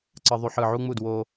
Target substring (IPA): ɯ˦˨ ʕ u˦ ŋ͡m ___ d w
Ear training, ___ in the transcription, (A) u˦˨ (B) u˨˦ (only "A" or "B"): A